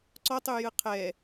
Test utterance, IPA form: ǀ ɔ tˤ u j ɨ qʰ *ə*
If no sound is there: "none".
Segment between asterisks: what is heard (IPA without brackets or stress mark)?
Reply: ɛ